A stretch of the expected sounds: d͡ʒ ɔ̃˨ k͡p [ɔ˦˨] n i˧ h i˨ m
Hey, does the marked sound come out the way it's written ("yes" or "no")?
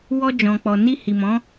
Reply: no